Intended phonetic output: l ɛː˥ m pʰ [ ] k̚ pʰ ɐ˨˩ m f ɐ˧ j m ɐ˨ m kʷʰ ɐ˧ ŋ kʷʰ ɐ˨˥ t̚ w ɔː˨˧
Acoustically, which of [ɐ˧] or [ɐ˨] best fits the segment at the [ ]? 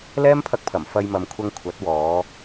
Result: ɐ˧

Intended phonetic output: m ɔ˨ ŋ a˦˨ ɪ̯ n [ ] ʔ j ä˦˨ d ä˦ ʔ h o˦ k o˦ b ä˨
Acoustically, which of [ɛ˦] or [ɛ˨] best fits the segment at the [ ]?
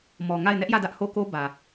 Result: ɛ˦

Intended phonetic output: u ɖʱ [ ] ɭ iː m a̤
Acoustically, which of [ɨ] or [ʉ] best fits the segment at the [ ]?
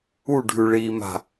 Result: ʉ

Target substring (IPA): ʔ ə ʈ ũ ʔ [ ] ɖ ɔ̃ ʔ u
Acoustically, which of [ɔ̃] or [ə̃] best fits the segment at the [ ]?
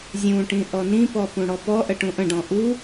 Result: ə̃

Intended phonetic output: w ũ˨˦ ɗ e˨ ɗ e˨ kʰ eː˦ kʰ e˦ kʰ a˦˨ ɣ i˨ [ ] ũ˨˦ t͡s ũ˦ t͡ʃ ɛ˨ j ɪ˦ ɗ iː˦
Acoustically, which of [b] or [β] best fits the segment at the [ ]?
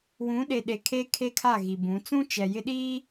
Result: b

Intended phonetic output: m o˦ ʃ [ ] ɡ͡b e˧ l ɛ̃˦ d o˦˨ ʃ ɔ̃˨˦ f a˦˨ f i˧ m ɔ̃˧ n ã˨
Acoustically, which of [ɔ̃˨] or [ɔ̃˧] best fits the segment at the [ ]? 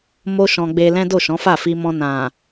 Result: ɔ̃˧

